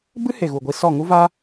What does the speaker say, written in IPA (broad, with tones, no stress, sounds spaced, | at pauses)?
b ɨ˦ h e˨ ɣ u˨ ɡʷ i˧ s ɔ˦˨ ŋ u˦ v aː˦